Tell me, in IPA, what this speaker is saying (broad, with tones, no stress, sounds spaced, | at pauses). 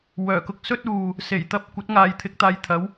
w œː˨˩ k ʊ˧ k̚ s ɵ˥ t̚ uː˨ | s e˨˩ j t̪ ɐ˧ p̚ kʷ ɐ˨˥ t̚ ŋ aː˨ j t̪ʰ ɪ˨˥ k̚ t̪ aː˨˧ j t̪ʰ ɐ˨˥ w